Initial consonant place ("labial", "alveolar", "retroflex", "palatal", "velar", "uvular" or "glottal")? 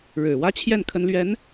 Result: retroflex